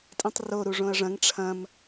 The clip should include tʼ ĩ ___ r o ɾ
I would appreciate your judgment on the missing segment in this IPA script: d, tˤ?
tˤ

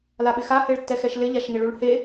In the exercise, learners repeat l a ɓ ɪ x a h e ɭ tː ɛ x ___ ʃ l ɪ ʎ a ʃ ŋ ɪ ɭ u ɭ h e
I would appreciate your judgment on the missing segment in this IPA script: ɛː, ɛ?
ɛ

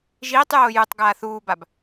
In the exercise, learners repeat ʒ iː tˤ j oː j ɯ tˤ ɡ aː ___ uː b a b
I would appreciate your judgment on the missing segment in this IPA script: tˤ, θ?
θ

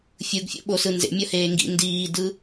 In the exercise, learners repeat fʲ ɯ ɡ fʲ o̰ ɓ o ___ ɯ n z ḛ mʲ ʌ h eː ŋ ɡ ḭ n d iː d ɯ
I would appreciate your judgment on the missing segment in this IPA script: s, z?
s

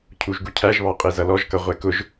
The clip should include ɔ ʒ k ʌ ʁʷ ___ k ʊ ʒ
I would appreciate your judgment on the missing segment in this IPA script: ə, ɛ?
ɛ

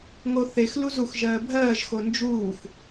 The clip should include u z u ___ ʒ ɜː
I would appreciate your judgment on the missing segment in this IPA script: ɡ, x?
x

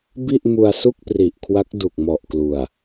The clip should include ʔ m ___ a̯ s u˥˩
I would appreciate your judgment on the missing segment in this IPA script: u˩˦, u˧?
u˧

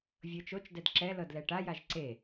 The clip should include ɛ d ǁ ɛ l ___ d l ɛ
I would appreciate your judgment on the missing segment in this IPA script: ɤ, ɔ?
ɤ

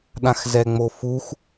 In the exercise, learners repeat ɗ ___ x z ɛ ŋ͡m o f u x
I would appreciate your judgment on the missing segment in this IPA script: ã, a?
ã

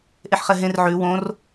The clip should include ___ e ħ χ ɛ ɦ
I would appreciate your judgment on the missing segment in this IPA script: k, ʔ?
ʔ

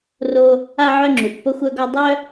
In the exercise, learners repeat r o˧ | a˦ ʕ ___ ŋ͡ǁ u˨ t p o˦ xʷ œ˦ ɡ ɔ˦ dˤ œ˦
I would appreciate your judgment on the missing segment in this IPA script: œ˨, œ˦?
œ˦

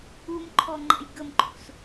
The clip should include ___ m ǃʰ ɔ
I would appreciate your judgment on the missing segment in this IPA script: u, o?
u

